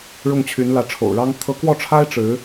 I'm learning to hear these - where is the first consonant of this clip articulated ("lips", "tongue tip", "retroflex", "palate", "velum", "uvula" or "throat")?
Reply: retroflex